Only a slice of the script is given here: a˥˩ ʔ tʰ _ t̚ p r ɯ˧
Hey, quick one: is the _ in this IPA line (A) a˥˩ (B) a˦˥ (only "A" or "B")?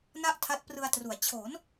B